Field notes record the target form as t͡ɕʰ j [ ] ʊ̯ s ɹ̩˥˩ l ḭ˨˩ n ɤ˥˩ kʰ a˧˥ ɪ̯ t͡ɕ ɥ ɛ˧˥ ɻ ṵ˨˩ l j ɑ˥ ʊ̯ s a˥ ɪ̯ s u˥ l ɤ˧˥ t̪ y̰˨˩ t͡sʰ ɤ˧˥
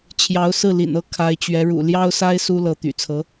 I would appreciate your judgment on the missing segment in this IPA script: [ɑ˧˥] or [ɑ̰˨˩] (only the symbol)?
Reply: ɑ˧˥